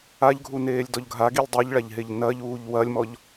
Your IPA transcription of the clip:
aʎɡʱuneːlʲdɔʎ ɡʱaɡilʲ dˤiʎɭaʎɦeʎ nɐʎuːʎ wɐlʲmɔʎ

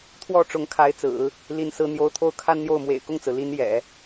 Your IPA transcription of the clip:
t̪ʰwɔ˥˩ʈ͡ʂʊ˧˥ŋ kʰa˧˥ɪ̯t͡sɹ̩˨˩˦ | li˧˥nsɹ̩˧˥n̪jo˧˥ʊ̯ t̪ʰo˥˩ʊ̯kʰa˥nn̪jo˥˩ʊ̯ mwḛ˨˩ɪ̯kʊ˥˩ŋt͡sɹ̩˩ li˧˥n jɛ̰˨˩˦

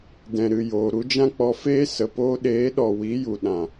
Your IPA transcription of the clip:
dɛ̃˨ɾɨ˨ joː˨ɾu˧d͡ʒã˦k͡pɔ˧ feː˦sə˨ poː˧ɗeː˨˦ɗɔ˨ wi˨˦ju˨ɗã˨

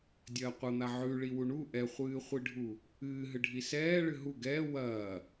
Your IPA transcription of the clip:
dʲɐːqʷɐn̪a ʕʉ ɭiwuɳu ʔɛχʷɨːχʷiɖʱu | ɨːɦɨɖʱi sɛː ɭɨɦu ɡɛː wɐː

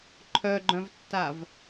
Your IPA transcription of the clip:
ǃʰœɡ͡ǃœ̃vtːav

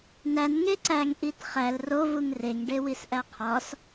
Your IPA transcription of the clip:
næn ŋeǀæŋ ʔitχæl ro vuŋreŋ ɖewisʔæqʰɒs

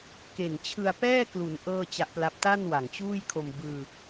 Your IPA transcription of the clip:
ke˨˩nt͡ɕʰɯ˧a̯ pɛː˥˩klu˩˦n ʔɤː˥˩t͡ɕa˦˥ʔpla˦˥p̚ ta˥˩nwa˨˩ŋt͡ɕuː˥˩jkʰo˧m bɯː˧

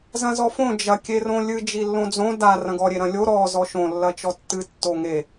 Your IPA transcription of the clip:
zɐ̃zɔfõ d͡ʒɐ kʲerõlʲɨ d͡ʒilːõd͡zõ da rɐ̃ɡɔ ɾʲeɾɐ̃lʲo ɾɔ zɔʃõ lːɐt͡ʃɔtːɨ tːoŋe

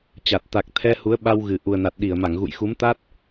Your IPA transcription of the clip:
t͡ɕa˨˩t̚ t̪a˨˩k̚ t̪ʰɛ˧ hu˨˦ə̯ɓa˧wɣɨ˨˩ ʔu˨˩ə̯na˨˩t̚ɗi˧˩ə̯ma˧˩ŋ ɣṵ˧˨jxu˨˦mt̪a˦˥t̚

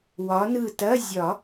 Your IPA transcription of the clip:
wɒ˨˦nɯ˧˩tɐ˧˥˧ zʲɒ˨˩˦

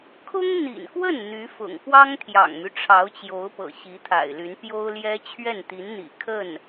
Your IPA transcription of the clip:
kʰʊ˥ŋn̪ḭ˨˩nkwə˥˩n n̪y˧˥fʊ̰˨˩ŋ pwɑ˥ŋt̪ʰjɑ̰˨˩ŋmy˦ ʈ͡ʂʰɑ˧˥ʊ̯t͡ɕjo˧˥ʊ̯pɤ̰˨˩ ɕi˧˥t̪ʰa̰˨˩ɪ̯ly˧˥n pjo˥ʊ̯ljɛ˥ t͡ɕʰɥɛ˥˩nt̪i˧˥nn̪ḭ˨˩ kʰə˥˩n

